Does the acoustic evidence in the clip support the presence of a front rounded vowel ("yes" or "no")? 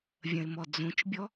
no